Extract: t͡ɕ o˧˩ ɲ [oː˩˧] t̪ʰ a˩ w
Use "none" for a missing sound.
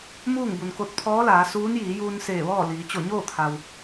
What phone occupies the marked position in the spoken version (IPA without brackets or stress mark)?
oː˥˨